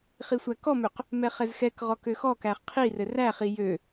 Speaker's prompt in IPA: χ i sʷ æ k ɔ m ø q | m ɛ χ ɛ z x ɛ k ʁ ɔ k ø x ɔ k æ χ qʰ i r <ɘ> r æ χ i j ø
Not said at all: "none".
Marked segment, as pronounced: ɘ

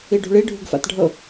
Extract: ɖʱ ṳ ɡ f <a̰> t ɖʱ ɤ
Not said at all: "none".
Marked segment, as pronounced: a̰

